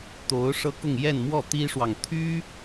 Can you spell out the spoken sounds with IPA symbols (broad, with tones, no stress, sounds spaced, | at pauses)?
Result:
t̪ o˧˥ ʊ̯ ʂ ɤ˥ k ʊ˥˧ ŋ j ɛ˥˧ n m w ɔ˥˩ t̪ i˥ ʂ w ɑ˨ ŋ t̪ʰ y˥